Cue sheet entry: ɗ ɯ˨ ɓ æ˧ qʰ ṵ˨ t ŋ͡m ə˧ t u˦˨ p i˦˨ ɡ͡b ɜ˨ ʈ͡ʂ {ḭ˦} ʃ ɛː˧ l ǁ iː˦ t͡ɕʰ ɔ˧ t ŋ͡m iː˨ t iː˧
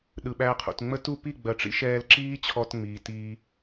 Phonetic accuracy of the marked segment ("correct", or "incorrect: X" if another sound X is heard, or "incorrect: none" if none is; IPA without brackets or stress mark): correct